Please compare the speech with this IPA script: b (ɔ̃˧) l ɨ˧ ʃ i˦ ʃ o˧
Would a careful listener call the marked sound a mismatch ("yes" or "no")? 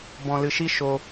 no